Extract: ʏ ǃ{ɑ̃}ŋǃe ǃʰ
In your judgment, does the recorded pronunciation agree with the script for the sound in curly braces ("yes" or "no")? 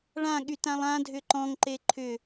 no